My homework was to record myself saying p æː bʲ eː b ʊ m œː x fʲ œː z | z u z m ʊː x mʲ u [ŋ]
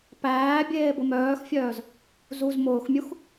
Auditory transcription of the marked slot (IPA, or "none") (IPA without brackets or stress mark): x